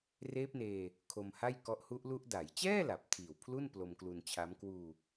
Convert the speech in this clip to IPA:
reː˦˥p̚neː˧ | kʰo˧mha˥˩jkɔ˦˥ʔ hu˦˥ʔlu˦˥ʔ da˩˦jt͡ɕɛː˥˩ la˨˩p̚tʰiː˨˩wpʰlu˥˩n plo˧mklu˧nt͡ɕʰa˦˥m kwuː˧

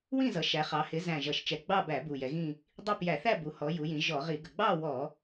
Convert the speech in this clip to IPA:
wĩ˥˧zʌ˩˧ ʃæ˩˧χɑ˩˧ hɪ˩˧zæ̃˨˩ ʒʌ˨˩ʃt͡ʃɛ˨˩ɡ͡bɑ˥˧bæ˧˩˧ bu˨˩jɛ˩˧ɣĩ˥˧ | dˤi˥˧pjæ˧˩˧ θæ˥˧bu˩˧hɔ˩˧ ju˩˧jĩ˩˧ ʒɔ˧˩˧ʁi˧˩˧ ɡə˨˩ɡ͡bɑ˥˧ wɔ˧˩˧

